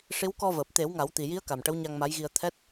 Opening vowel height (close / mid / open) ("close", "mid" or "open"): close